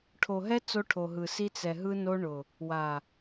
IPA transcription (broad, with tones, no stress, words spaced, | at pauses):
ʈʰo˨ɦɛ˦ t͡so˦ʈʰo˨ɦɯ˨si˦ t͡sɛ˨ɦɯ˦no˦ɳʊ˨ | wa˨